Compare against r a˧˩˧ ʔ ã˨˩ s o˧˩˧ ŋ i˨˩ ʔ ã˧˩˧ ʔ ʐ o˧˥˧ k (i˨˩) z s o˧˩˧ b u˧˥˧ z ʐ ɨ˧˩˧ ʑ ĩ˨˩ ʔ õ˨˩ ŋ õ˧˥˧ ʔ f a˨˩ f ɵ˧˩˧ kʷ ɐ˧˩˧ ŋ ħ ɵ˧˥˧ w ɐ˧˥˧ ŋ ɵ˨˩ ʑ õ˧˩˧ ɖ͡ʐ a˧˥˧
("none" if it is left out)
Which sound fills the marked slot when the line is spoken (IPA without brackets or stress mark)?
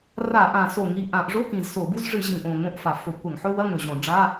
ĩ˨˩